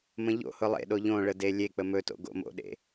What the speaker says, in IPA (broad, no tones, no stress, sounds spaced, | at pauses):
m ə̃ ʎ o̰ h ʊ lˠ ḛ ɗ o ʎ õ ɭ ə d e lʲ e k͡p ə m ɵ t o̰ ɡ o̰ m o̰ ɗ ḛ